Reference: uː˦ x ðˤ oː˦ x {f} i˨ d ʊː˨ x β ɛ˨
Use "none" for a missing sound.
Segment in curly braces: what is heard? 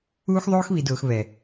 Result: β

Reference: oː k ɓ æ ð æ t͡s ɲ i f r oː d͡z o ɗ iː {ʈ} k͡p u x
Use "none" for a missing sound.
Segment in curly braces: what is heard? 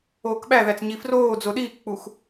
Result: k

